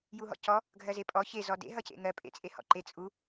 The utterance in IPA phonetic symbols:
j u ɦ ɔ̰ c ɔ | ɡʱ ɜ z e pʼ ɔ ç e z ɔ d ḛ ɦ ʌ c ḛ ŋ ɜ pʼ ḛ t͡sʼ e h ɔ̰ ǃ e t͡sʼ u

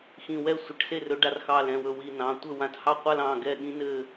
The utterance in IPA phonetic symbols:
x ĩ˧˩ w ɛ˥˧ sʷ ɘ˧˩ ʈ s e˥˩ r ɵ˨˦ ɖ a˨˦ r x ɑ˧˩ l ɛ̃˩˧˩ w ɵ˧˩ w i˧˩ n ɑ̃˩˧˩ tʷ ɘ˥˩ w ã˧˩ t h ɑ˥˩ qʷ a˥˧ l ɑ̃˩˧˩ ɡ ɛ˧˩ ɠ ĩ˨˦ n ɘ˧˩

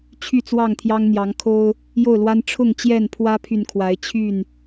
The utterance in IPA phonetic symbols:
t͡ɕʰ y˥˨ t͡s w ɑ˥˨ ŋ t̪ʰ j ɑ˦ ŋ n̪ j ɑ˨˦ ŋ kʰ o˦ ʊ̯ | j o˥˨ ʊ̯ l w a˦ n ʈ͡ʂʰ ʊ˥˨ ŋ t͡ɕ j ɛ˥˨ n pʰ w ä˦ pʰ y˨ n kʰ w a˨˦ ɪ̯ t͡ɕʰ y˥˨ n

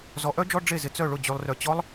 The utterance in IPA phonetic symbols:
z ɔ˨˦ ʔ œ˦˥ d͡ʒ ɔ˧˥˧ ɖ͡ʐ e˥˩ z ɪ˨ t͡s œ˥˩ ɭ ʊ˥˩ d͡ʑ y˨ lˠ r œ˨ t͡ɕ ɔ˦˥ lˠ

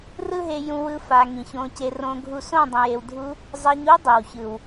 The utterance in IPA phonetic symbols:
r ɯ˦ ɦ e˧ j ũ˧ w ɯ˧ f a˨ ŋ ĩ˨ ç õ˧ c e˧ r õ˧ ɡʱ u˧ s õ˦˨ dˤ ĩ˨ j e˨ w dʱ u˧ | zˤ ɛ˧ ɲ u˦ dˤ e˨ w ç ɯ˨ w

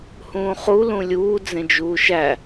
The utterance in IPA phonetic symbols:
h ũː χ u l ũ lʲ uː d͡z ẽ d͡ʒ uː ʃ æ

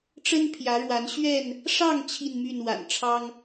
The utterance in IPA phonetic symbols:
ʈ͡ʂ ə˦ n pʰ j ä˨˦ ɻ w a˨˦ n ɕ ɥ ɛ˥˨ n | ʂ ɑ˥˨ ŋ t͡ɕʰ i˥˨ n m y˥˨ n w a̰˨˩ n ʈ͡ʂʰ ɑ˦ ŋ

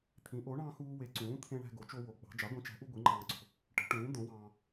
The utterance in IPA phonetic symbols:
t̪ʰ ĩ˩˥ ʔ o˩˥ ɳ ɑ̃˧ x uː˧ w e˩˥ ǀ ũː˩˥ t̪ʰ ẽ˧ ɳ æ̤˧ ɡ o˩˥ t͡ʃ o˧ w o˩˥ ɡ͡b ɑ̤˩˥ d͡ʒ ɑ˩˥ ɡʷ ĩ˩˥ t͡ʃ æ̤˩˥ ʔ u˧ ɡʷ i˩˥ ŋ͡ǃ ɑ̃ː˧ ǀ o̤˩˥ | ʈ e̤˩˥ ʈ ũː˩˥ d̪ õ˩˥ w ɑ̃ː˧

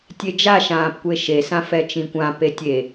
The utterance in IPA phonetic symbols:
tʲ e d͡ʒ a ʃ ãː p kʷ e ʃ e s ã f ɛ t͡ʃ ĩ kʷ ã p e tʲ e

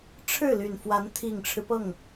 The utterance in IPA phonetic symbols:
ʈ͡ʂʰ ɻ̩˥˩ l y˨˩ n f w a˧˥ n t̪ʰ i˨˩ ŋ ʈ͡ʂʰ ɻ̩˦ p ɤ˥˩ ŋ

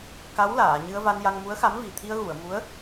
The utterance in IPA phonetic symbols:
k a˧˥ w l aː˨˩˨ ɲ ɨ˧ ə̯ v a˧ n j a˧ ŋ m u˧˥ ə̯ x a˧˥ m v i˨˩ t̪ʰ i˧ ə̯ ɣ u˨˩˨ ə̯ m u˧˥ ə̯

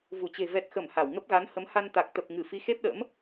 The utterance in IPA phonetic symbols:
v u˧˩ t͡ɕ e̤˨˩ v ɛ˨˩ t̚ x ə˧˩ m h a˧˩ w ŋ ə˦˥ p̚ ɣ a˨˦ n h ə˨˦ m h a˧ n t̪ a˨˩ k̚ t̪ ə˨˩ p̚ ŋ ɨ˧˩ f i˨˦ x e˦˥ p̚ ɗ ə̰˧˥ m

